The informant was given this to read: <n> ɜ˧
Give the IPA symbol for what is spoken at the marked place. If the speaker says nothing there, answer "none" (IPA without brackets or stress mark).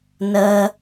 n